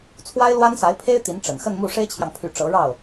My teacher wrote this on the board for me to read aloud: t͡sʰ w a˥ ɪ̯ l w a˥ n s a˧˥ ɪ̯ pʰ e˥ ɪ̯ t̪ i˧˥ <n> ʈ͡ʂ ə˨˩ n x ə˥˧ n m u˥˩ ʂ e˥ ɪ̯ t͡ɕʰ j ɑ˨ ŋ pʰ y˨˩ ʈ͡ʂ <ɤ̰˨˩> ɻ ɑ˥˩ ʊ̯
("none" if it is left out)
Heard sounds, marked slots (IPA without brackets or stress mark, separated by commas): n, ɤ˧˥